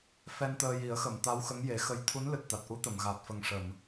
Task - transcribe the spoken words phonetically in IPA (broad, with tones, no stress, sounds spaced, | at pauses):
f ɛ˧ n t̪ əː˧ j i˨˩˦ ə̯ x ə˨˩˨ m t̪ a˧˥ w x ə˧˥ ŋ j e˨˩˦ x ə˧˥ j t̪ʰ u˧˥ n l ɨ˨˩ t̚ t̪ a˨˩ t̚ ʔ u˧˥ t̪ ə˨˩˨ m ɣ aː˨˩ t̚ f ə˨˩ ŋ ʂ ə˨˩˨ m